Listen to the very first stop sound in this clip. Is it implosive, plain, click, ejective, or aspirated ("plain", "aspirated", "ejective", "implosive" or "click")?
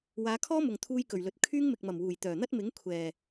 aspirated